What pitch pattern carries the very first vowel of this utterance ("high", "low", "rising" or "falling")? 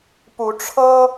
rising